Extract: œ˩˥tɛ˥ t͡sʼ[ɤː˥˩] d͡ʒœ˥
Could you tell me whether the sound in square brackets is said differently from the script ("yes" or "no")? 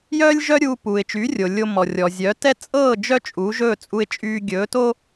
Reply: no